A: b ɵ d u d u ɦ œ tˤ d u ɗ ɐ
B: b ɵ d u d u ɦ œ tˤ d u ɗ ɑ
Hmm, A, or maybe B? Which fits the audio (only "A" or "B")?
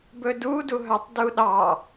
B